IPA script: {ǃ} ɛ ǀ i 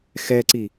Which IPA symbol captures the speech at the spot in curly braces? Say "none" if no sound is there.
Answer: x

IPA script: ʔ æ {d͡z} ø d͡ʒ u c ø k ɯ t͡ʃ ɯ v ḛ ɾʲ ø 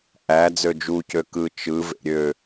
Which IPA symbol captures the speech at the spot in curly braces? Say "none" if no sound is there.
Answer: d͡z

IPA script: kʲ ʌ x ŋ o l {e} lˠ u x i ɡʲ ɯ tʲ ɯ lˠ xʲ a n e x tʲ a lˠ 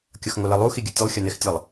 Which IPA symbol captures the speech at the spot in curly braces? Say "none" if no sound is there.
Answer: ɛ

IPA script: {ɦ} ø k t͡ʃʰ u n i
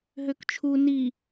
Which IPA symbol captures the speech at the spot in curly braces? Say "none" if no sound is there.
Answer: ɦ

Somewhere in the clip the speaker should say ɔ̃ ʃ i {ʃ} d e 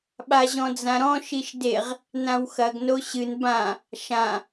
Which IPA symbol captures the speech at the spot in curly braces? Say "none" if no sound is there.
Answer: ʃ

